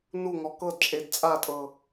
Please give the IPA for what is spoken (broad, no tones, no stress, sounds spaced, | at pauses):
n u ŋ ɔ k ɤ d t͡ʃʼ e d t͡sʼ a tʼ ɤ